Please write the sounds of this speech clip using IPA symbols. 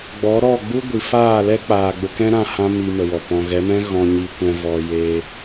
ɡ͡b ɔ˨˦ ɾ ɔ˦˨ ɡ͡b u˦ ɡʷ i˨ f aː˦˨ l ɛ˦ k͡p aː˨ ɡ͡b ə˧ k ɛ̃˦ ɾ ã˧ h ã˦ m i˧ m ə˨ w ɔ˨ p ɔ̃˨ ɣ ɛ˨˦ m ɛ̃˦ ɣ ɔ̃˧ ɲ i˧ kʷ ɛ̃˧ v ɔ˧ j e˧

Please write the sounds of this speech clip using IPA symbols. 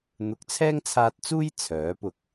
n̪ ʊ˨˥ k̚ t͡sʰ ɛː˥ ŋ t͡sʰ aː˧ t̚ t͡s uː˥ j t͡sʰ œː˨˥ p ʊ˧ k̚

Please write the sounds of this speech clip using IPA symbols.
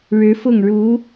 ɻ ɻ̩˧˥ f ʊ˥˩ ŋ ɻ u˧˥

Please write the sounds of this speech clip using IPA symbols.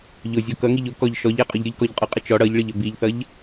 ʎ ʊ zʲ ɔ k ʌ ŋ i ʎ ʊ k ɔ ʎ ʃ ɔ ʎ æ qʼ ʊ ʎ ɾʲ ʊ ʎ k ɔ ʎ qʼ ɔ qʼ ɪ t͡ʃ ɔ ɽ ʌ ʎ ɭ ɪ ʎ ə b i ʎ θ ʌ ʎ

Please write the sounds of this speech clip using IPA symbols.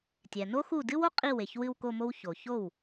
tʲ ɛ˩ n o˥ x u˥˩ d ɨ˥ w o˥ qʼ i˥˩ w e˩ ç w ɨ˥˧ w k o˥˧ m o˥ w ç o˩ ç o˥˩ w

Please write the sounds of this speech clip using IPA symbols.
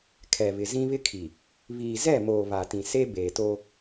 kʰ ɛ˨ β ɪ˨ z ĩ˦ β ɪ˦ kʰ i˨ | β iː˨ z ɛ˦˨ m oː˨ β a˨ t ĩ˨ s e˦ b eː˨ t o˦

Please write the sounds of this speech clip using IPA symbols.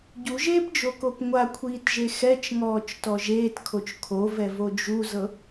ɟ u ʒ eː p d͡ʒ o k o p ŋʷ a kʷʰ iː t ʒ e x ɛ t͡ʃ ŋ ɔː t͡ʃ t ɔ ʒ eː t kʰ o t͡ʃ kʰ o v ɛ v o d͡ʒ u z ɤ

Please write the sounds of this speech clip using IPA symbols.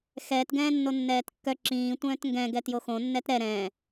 x ɛː t ɡ ɛ̃ː nː o nː ɛː t kː œ ǁ ĩː tʷ œ̃ː t ŋ ɡ ɛ̃ ɡ ɛ t j o x õ nː ɛ t ɾ ɛ ɾ ɛ̃ː

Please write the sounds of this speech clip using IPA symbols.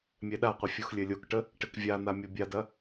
mʲ ɛ ɗ a qʷ ə fʲ u x lʲ ɘ lʲ o k ʈ ə | ʈ ɘ k vʲ a n̪ a mʲ ɔ bʲ a d ɐ

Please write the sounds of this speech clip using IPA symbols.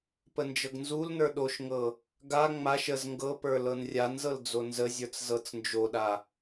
p ə n d͡ʒ ɤ ɡ n z u l n ə˞ ɗ o ʃ ŋ ɤ | ɡ a ŋ͡m a ʃ ə z ŋ ɡ ɤ p ə˞ l ɤ n rʲ a n z ɤ l d͡z o n z ə zʲ ə˞ t͡s z ɤ t͡s n d͡ʒ o ɗ a

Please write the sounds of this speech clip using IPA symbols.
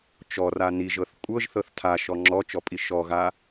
t͡ʃ ɔ r a n i ʒ ɤ θ kʷʼ ɤ ʒ θ ɤ θ tʰ a ʃ ɔ ŋ͡ǁ ɔ t͡ʃ ɔ pʼ i ʃ ɔ ɣ a

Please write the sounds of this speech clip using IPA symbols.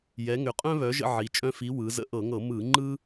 j ɛ˨˦ ŋ ʏ˨˦ qʼ œ̃˥ β œ˨˦ ʒ ə̰˥ ʕ i˨˦ t͡ʃʼ œ̃˥ f i˨˦ w ɯ˨˦ z ə̰˥ ʔ ɤ˧˩˧ ŋ ɤ˧˩˧ m ɯ˧˩˧ ŋ͡ǃ ɯ˥

